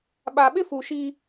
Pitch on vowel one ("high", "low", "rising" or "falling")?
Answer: low